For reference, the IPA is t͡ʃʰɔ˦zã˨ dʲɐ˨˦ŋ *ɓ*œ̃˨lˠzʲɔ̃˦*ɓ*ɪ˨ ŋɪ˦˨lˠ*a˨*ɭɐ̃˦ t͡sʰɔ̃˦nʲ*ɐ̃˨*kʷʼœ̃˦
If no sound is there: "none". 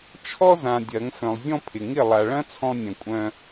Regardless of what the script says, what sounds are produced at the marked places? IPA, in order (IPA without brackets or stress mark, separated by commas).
f, pʰ, a˨, ɐ̃˨